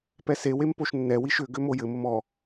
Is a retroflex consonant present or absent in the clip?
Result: absent